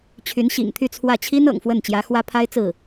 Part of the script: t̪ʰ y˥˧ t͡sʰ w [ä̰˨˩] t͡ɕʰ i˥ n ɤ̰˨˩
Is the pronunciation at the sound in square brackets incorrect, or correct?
incorrect: ä˥˩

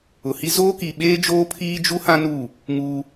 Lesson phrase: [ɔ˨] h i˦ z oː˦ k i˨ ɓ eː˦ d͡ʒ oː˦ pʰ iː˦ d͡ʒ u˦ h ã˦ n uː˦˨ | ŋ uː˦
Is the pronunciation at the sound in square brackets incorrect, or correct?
incorrect: ʊ˨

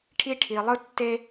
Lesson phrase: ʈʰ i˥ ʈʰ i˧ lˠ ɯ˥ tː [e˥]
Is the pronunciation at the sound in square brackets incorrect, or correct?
correct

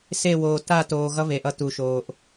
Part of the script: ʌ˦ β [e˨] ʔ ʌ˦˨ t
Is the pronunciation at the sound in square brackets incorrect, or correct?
correct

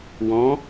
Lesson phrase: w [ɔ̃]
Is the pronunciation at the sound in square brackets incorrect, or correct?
correct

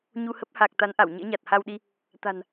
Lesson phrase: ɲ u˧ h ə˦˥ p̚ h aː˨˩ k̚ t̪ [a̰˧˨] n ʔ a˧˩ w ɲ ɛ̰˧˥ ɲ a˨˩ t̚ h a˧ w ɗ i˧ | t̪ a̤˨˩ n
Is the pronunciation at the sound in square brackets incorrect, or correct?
incorrect: a˨˦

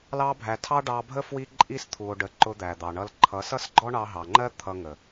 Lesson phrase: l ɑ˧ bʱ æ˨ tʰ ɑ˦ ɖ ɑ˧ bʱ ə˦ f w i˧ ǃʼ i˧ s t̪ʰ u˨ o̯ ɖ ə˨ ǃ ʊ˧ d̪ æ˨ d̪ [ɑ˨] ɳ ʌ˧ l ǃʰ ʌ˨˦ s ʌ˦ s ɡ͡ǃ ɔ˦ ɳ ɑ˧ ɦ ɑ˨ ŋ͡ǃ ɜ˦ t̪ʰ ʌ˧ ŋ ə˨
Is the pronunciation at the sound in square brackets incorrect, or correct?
correct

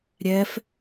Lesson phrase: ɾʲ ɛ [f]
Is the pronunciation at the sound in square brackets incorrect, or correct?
correct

